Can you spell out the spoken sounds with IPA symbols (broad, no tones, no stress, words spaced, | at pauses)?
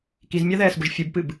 kizmʲɑðɛːsbʊʒ fʲɨbpɨb